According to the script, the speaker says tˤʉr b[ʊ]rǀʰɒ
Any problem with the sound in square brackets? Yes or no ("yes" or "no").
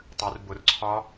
no